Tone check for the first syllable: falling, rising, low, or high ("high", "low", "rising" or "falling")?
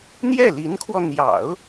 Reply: falling